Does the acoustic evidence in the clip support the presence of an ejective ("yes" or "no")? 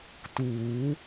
no